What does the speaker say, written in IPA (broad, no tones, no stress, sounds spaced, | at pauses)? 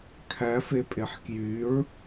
kʰ æ f e pʼ e ħ k j y ɹ